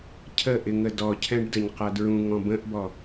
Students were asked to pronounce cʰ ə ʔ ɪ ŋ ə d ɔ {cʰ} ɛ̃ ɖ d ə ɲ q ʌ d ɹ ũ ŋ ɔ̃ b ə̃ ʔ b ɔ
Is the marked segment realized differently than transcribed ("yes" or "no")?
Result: no